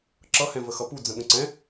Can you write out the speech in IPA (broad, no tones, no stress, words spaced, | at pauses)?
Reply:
ǁʌhɛ̃və xʌpu d͡zə̃ɠə̃ǀɛ̃